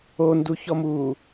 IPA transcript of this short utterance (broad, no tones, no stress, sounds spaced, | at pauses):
o n d u ç ɔ m uː